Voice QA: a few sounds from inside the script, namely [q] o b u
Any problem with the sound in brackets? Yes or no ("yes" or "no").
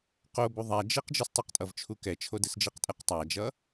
no